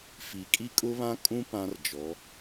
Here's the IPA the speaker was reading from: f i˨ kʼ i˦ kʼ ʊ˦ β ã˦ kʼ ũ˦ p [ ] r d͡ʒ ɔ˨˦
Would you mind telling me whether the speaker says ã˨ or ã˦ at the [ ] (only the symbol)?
ã˦